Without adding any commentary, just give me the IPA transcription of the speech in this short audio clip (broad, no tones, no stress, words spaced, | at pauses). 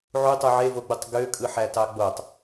ʕutˤu ʕevoɡ͡butˤ ɡøkʼɯħætɑ ɡ͡botˤ